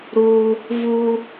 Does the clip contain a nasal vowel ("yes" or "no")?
no